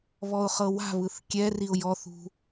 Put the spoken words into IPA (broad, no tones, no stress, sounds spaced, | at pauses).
β ɔ ʊ̯ χ ɤ w a̤ β ɯ θ kʲ ɛ r i ʊ̯ j ɔ θ ṳ